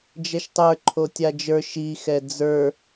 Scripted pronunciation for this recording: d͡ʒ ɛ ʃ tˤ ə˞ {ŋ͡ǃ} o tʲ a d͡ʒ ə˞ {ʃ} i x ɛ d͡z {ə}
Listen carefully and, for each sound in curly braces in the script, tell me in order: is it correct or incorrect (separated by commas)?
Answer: incorrect, correct, incorrect